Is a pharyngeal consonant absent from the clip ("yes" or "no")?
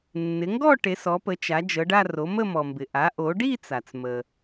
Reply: yes